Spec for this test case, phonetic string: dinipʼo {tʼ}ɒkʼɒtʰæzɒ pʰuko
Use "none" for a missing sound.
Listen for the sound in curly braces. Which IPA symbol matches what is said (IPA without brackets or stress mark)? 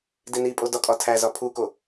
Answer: d